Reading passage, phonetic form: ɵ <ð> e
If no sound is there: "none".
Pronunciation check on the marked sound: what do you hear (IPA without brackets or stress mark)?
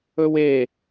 w